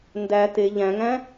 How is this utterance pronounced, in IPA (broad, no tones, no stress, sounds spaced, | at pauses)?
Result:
n d æ t e ʎ æ̃ ŋ æ̃